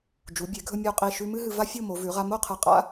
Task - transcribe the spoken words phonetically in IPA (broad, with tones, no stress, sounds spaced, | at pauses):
d͡ʒ u˩˧ bʲ e˩˧ ɡʱ ɵ˧ mʲ u˧˩ qʼ i˧˩ ʃ ʉ˧ m ɨ˥ ɦ ɨ˧ v a˥ fʲ o˥˧ m o˩˧ v ʉ˩˧ ʁ a˧ m o˥˧ qʰ ɨ˧˩ qʼ a̰˥